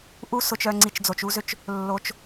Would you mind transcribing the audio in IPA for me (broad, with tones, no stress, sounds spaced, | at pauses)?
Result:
ʔ u˦ s ʊ˧ t͡ʃ œ˧ ŋ͡ǀ i˧ t͡ʃ d͡z o˧ t͡ʃ u˦ z ø˦ t͡ʃ | lː o˧ t͡ʃ